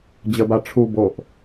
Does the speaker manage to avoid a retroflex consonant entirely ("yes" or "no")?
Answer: no